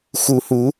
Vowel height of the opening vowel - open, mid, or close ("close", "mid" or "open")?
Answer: close